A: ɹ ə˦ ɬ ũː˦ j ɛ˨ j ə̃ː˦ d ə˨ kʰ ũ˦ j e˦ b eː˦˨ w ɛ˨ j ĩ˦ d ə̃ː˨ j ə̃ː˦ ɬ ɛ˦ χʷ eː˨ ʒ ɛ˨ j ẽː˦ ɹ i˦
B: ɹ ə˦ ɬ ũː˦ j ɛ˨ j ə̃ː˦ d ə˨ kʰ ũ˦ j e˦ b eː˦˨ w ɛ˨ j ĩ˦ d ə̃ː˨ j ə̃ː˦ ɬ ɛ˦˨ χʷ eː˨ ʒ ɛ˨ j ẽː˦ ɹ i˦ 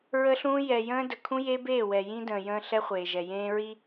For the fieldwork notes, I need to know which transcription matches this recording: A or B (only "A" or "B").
A